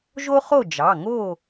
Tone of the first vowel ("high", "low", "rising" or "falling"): high